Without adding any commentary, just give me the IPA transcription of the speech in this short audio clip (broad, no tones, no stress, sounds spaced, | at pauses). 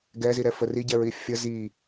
ɡ ɛ z i ɾ ɛ f ə r i ɟ ɛ ɹ i fʲ ə z i